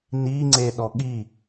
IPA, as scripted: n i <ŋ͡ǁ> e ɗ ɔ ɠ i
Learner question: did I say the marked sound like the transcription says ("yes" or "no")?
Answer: no